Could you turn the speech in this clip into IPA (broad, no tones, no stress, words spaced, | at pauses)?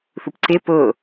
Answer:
θupǀɪ pʊ